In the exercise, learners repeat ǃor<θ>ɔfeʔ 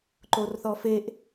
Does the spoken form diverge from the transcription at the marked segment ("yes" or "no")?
no